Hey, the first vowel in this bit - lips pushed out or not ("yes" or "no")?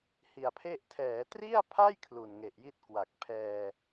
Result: no